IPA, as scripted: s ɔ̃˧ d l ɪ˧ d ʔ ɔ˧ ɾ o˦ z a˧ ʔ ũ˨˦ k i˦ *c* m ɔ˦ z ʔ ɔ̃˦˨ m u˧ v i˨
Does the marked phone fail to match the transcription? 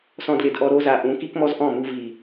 yes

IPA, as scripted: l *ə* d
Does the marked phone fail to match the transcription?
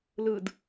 yes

